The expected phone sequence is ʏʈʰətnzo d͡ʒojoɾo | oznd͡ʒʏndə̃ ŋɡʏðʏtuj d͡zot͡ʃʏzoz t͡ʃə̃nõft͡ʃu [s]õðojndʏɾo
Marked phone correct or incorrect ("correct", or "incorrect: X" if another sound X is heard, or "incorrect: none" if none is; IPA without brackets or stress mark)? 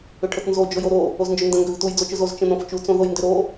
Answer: incorrect: t͡s